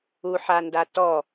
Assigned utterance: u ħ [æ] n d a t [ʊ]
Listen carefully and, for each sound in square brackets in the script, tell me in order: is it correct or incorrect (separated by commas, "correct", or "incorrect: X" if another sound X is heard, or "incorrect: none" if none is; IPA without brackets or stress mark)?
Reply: incorrect: a, incorrect: ɔ